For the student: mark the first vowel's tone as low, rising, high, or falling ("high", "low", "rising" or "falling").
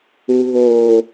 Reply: low